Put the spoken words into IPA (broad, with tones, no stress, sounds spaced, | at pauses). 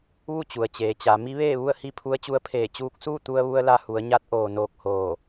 ʋ u˥˨ t͡ɕ u˩ ə̯ t͡ɕ eː˩˧ t͡ɕ a˩˧ m i˧˥ ʋ eː˥˨ ʋ u˥˨ ə̯ h i˥˨ pʰ u˧˥ ə̯ t͡ɕ u˧˥ ə̯ pʰ eː˧˩ t͡ɕ uː˧ k̚ s uː˥˨ t̪ u˧ ə̯ ʋ u˧ ə̯ l a˧ h u˩˧ ə̯ ɲ a˧˥ t̚ ʔ oː˩ n oː˧ k̚ h oː˧˩